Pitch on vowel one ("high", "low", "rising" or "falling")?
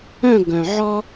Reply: falling